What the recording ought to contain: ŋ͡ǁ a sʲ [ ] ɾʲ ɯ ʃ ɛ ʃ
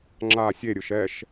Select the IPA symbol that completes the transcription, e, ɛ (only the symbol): e